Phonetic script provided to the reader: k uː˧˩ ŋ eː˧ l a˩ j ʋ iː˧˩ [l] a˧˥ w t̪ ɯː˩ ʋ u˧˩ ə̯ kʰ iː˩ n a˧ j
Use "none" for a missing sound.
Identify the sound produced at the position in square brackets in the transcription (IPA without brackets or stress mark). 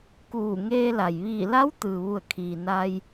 l